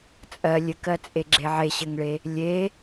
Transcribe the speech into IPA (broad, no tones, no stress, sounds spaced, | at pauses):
t͡sʼ ɜ lʲ ɘ k ɜ t͡sʼ e ɡ͡ǁ e ʕ e ɕ ɘ ŋ ɭ e | lʲ e